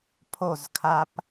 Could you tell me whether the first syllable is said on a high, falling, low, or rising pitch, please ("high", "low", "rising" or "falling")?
falling